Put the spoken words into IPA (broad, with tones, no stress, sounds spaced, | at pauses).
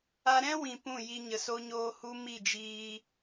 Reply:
a˧ ɾ ɛ̃˦ w ĩ˧ p ũ˦˨ j i˧ ɲ ə˧ s o˦ ɲ oː˦ h u˧ m i˦˨ d͡ʒ iː˧